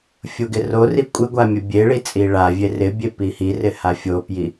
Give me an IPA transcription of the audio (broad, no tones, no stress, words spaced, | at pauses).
fʲoɡɪrori kʷʼɪ ɡʷamʲəbʲeɭi t͡sʼiɭavʲe rɪbʲe pihirɪ hafʲopji